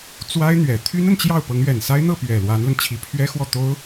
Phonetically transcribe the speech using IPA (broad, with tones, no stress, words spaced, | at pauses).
t͡swa˥ɪ̯ n̪ɥɛ˨˩ t̪ʰy˥nə˨n t͡ɕjɑ˥˩ʊ̯ pɤ˧˥ŋɥɛ˨˩nsa˥ɪ̯ n̪ɤ˥˩ pɥɛ˨˩ lwa˧˥nlə˧n t͡ɕʰi˧˥pʰɥɛ˥xwɔ˥˩ t̪o˥ʊ̯